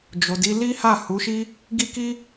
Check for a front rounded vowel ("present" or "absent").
absent